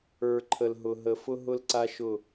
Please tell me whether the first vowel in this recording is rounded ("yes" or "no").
no